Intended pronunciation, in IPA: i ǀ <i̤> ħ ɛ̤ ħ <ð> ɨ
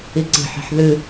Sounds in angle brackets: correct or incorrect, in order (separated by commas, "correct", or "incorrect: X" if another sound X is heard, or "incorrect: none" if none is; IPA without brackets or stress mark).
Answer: correct, correct